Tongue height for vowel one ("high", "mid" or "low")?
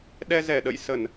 mid